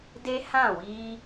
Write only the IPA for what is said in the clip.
d e˦ h ã˦˨ w iː˧

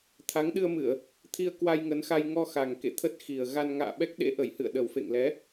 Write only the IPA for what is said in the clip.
t̪ʰ a˨˦ ŋ ɗ ɨ˧ ə̯ m ɨ˧˩˨ ə̯ | t̪ʰ i˧ ə̯ k w a˧ j ŋ ə˨˦ n x a˧ j ŋ ɔ˧ x a˨˩ ŋ k ḛ˧˨ t̪ʰ ə˦˥ t̚ x i˨˩ ə̯ ɣ a˧ n ŋ a̰ː˧˨ ɓ ɛ˦˥ k̚ ɗ ḛ˧˥ ʔ ə˧˩ j h ɨ̰˧˨ ə̯ ɗ ə˨˩ w f ḛ˧˨ ŋ l ɛ˨˦

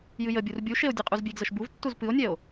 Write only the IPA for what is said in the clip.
j ɨ j ə bʲ u r bʲ u ʃ e o̯ dʲ ɨ qʼ u z bʲ e ɡ z ə ʃ b u v tː u z p ɨ o̯ nʲ ɛ o̯

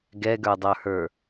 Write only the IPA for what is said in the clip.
ɡ ɛ ɡ ə˞ dˤ ə˞ h ə˞

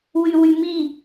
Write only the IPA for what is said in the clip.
w y w y m i

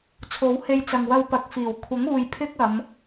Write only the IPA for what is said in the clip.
t͡sʰ o˨˥ w h e˧ j t͡s ɐ˨ ŋ w ɐ˧ w p ɐ˨˥ k̚ f iː˨˩ w kʷʰ ɐ˨˥ ŋ uː˨ j pʰ ɪ˥ k̚ ɐ˨˧ m

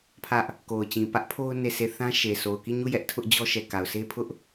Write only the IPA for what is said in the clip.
pʰ ä˦ ʔ | k o˨ ʊ̯ t͡ɕ ĩ˨ p ä˦ ʔ pʰ o˦ ʊ̯ n e˦˨ sʰ e˦˨ θ ã˦ ʃ e˨ sʰ o˨ ʊ̯ k i˦˨ ɲ u˦˨ j ɛ˦ ʔ tʰ ʊ˦ ʔ d͡ʑ ɔ˦ ʃ ɛ˨ k a˨ ʊ̯ s e˦ pʰ ʊ˦ ʔ

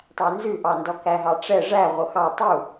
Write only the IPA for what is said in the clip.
tˤ æ n z ʉ ʔ ɑ n d ɔ k æ ɦ ɑ ʈ͡ʂ ɛ ʐ æ ʁʷ œ x ɑ tˤ u

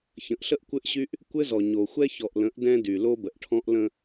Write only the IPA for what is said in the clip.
ç ə̃˨ ʔ ɬ ə˦ ʔ kʷ ɘ˦ ʔ ɕ y˦ ʔ | kʷ ɘ˦ z ɔ˨ ɲ o˨ xʷ ɛ˦ ç ɔ˨ ʔ l ə̃˨˦ ʔ d ɛ̃˦ d y˨ l o˦ b ə˨ ʔ ʈʰ ɔ̃˦ ʔ l ə̃˦

